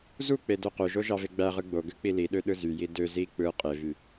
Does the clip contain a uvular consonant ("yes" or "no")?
yes